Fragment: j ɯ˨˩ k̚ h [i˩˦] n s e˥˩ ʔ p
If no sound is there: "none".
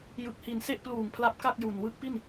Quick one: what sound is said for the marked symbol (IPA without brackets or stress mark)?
i˨˩